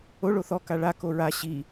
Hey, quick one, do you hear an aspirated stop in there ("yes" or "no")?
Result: no